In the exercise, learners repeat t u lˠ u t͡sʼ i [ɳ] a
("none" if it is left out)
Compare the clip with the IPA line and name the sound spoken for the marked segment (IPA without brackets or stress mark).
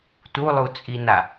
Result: n